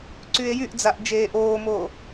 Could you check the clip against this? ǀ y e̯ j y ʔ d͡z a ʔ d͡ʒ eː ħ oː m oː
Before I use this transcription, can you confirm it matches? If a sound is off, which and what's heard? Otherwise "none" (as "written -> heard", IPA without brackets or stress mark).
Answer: ħ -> ʔ